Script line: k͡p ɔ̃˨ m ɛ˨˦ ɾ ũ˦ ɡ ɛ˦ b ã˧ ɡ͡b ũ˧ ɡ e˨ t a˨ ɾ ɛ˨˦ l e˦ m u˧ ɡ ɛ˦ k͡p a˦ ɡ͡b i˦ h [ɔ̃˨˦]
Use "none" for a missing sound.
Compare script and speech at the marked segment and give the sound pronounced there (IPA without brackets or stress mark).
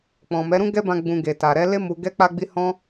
ɔ̃˦